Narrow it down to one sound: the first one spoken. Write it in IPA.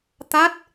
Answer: t̪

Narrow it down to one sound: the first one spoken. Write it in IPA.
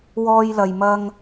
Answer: w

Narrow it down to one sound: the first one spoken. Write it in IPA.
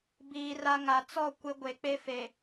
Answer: b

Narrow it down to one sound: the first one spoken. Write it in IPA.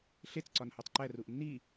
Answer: ɬ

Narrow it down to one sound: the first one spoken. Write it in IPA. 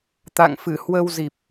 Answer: t̪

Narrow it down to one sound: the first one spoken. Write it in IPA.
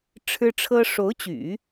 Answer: ʈ͡ʂʰ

